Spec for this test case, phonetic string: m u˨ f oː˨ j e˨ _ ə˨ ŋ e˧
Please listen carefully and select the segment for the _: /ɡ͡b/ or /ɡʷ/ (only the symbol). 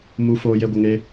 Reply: ɡʷ